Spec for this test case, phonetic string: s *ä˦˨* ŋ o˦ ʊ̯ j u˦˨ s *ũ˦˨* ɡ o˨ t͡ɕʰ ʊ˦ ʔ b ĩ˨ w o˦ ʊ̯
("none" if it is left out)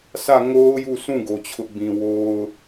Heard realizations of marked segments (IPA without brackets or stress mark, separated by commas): ä˦˨, ũ˦˨